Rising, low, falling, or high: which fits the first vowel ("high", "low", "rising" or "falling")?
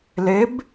rising